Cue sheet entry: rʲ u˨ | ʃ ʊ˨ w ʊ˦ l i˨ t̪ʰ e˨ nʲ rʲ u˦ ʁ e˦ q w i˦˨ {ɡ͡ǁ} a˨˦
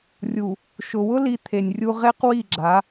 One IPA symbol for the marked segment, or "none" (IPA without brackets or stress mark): ɡ͡ǁ